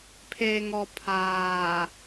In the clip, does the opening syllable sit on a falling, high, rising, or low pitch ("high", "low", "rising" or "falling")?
low